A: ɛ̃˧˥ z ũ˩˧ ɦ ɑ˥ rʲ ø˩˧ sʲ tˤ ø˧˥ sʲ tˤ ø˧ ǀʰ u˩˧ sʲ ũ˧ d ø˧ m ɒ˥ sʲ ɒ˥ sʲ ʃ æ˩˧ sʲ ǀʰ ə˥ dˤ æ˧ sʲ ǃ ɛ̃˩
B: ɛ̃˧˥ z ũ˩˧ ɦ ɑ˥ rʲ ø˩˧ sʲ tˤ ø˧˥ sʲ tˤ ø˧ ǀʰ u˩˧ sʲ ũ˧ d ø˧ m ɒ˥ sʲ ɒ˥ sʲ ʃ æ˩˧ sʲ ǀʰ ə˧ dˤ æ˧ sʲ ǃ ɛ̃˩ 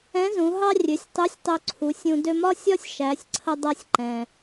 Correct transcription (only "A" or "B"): B